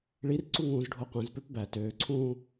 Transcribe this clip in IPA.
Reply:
ɭ i r ǀ u ŋ ũː z ɖʱ o qʷ ẽ z p ø p b æ t øː ǀʰ ũː

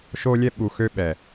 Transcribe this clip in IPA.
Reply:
ʃ o˧ lʲ ɛ˧ ɓ u˨ x ø˧ ɓ ɛ˨

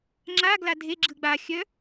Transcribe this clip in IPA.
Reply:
ŋ͡ǁ a ɡ l a dʱ e ɡ͡ǁ ɯ ɡ͡b a xʲ œ

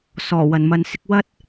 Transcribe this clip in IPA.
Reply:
s ɔː˨˩ w ɐ˨˩ n m ɐ˨ n s ɪ˧ k̚ w ɐ˥ t̚

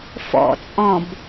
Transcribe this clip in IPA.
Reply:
f ɔ̰ t͡sʼ ɔ̃ b

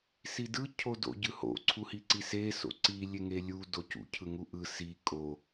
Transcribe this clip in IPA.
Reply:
s i d ɯ cʰ o d o̰ ɟ ɯ h o̰ ǀʰ u h i ǀ i s e s o̰ ǀ i lʲ e ŋ e lʲ u d o c ṵ cʰ ɯ ŋ u ʔ ɯ s i kʼ o

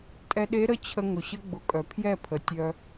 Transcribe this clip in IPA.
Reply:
tʼ ɛ˧ ɗ e˧˥ ɾ ə˥˧ t͡ɕʰ ə˧ ŋ ʊ˩ ɕ ə˧˥ ɡ͡b ʊ˩˥ kʼ œ˩ pʰ j ɛ˥˧ pʰ ə˩ tʲ œ˧

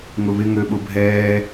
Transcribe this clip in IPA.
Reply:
ŋ ʊ β ɪ ŋ ø ɓ ʊ bʱ ɛː

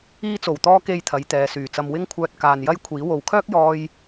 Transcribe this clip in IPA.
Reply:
iː˧ t͡s o˨˩ w t̪ ɔː˧ k e˨ j t̪ʰ ɐ˨˧ j t̪ ɛː˨ s yː˨˩ t͡s ɐ˨ m w ɪ˧ ŋ kʷʰ œː˨ t̚ k aː˨ n j ɐ˥ j kʷʰ iː˨˥ w o˨ w kʰ œː˥ k̚ j ɔː˧ j

